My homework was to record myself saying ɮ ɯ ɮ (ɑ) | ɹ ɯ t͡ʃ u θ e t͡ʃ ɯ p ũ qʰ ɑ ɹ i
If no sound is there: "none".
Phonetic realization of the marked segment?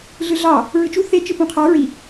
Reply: ɑ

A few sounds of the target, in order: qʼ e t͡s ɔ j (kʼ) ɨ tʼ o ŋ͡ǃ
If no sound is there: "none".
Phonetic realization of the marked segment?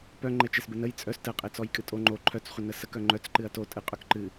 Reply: kʼ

